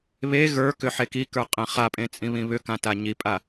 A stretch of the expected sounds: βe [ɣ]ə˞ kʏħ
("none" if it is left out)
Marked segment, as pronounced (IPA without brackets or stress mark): ɣ